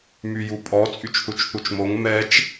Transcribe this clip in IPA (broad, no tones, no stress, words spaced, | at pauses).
myjupʼɔ t͡sʼyt͡ʃθut͡ʃθut͡ʃmoŋ mɛt͡ʃ